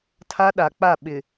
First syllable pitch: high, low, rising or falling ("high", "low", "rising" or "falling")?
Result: high